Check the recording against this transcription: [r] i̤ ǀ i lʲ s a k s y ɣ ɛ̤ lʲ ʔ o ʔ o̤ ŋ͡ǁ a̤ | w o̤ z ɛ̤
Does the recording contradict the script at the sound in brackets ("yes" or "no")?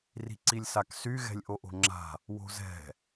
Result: no